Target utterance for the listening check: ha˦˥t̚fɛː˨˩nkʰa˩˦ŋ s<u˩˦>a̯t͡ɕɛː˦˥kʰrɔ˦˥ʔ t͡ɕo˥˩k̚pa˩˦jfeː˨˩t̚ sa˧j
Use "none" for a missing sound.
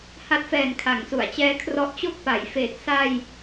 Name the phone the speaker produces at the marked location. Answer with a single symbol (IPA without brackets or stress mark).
u˩˦